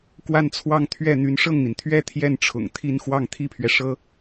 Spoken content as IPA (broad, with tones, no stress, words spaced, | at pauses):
kwa˥˧nt͡sʰwɑ˥˧ŋ t̪ʰɥɛ˥˩n̪y˧˥n ʂɤ˥˩ŋn̪i˩nt̪ʰɥɛ˥ t̪ʰjɛ˥˩nʈ͡ʂʰʊ̰˨˩ŋ t̪ʰi˥˧n xwɑ˥˩ŋt̪ʰi˥pʰɥɛ˨ ʂɤ˥